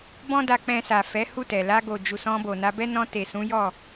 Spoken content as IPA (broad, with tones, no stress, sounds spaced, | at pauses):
b ɔ̃˦ d a˧ k͡p ɛ̃˧ s a˨ f ɛ˨˦ h u˦˨ t ɛ˨ l a˧ ɡ o˨ d͡ʒ u˨ s ɔ̃˧ b o˨ n a˧ b ɛ˦ n ɔ̃˧ t e˨ s ũ˨˦ j ɔ˦˨